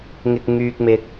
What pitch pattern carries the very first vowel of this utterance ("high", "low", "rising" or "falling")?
low